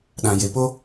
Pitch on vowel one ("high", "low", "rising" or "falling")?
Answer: low